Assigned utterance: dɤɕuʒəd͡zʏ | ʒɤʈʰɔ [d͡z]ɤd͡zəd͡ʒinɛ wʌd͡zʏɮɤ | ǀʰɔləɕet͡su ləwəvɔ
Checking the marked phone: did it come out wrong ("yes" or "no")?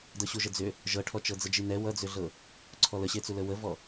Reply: yes